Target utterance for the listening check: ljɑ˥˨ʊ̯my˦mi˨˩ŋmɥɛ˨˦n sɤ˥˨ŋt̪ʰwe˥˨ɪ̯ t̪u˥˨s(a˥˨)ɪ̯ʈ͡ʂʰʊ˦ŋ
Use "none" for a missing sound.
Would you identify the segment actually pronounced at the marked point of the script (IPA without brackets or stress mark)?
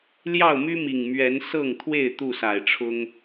a˨˩